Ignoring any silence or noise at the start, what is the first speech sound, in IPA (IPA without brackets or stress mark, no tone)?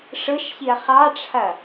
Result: ʂ